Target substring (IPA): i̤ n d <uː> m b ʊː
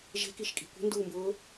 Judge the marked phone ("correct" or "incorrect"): correct